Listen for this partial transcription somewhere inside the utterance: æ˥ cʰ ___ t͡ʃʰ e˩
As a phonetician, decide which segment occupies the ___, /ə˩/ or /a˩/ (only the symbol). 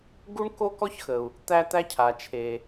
a˩